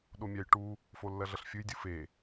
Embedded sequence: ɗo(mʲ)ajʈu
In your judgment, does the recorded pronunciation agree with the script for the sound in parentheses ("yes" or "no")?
yes